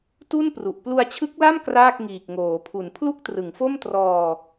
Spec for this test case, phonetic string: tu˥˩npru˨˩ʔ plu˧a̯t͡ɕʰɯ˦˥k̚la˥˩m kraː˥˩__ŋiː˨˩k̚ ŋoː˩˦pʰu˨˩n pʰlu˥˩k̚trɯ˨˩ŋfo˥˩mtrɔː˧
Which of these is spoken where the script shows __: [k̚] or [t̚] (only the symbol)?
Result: k̚